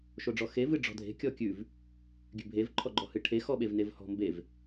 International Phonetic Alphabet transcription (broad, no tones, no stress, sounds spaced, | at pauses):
ʃ o ɖ͡ʐ ɔ x e v ɨ ɖ͡ʐ ɔ̤ dʱ e̤ kʲ ɔ kʲ ʉ v | ɡʲ ʉ bʱ e v ǃʰ ɔ ɡ͡ǃ ɔ h ɨ ʈʰ e x ɔ ɓ e v n e v h ɔ̤ m b e v